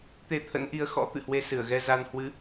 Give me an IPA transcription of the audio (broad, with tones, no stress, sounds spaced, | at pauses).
t̪ e˧ t̪ʰ ə̰˧˥ n ʔ i˨˦ ə̯ x ɔ̰˧˥ t̪ ɨ̰˧˨ h w e˧ s ɨ˧˩ ə̯ ɣ ɛ˧ z a˧ n h w ɨ˨˦